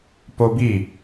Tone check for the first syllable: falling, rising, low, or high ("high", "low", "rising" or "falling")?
high